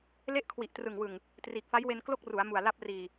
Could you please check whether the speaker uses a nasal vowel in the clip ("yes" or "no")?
no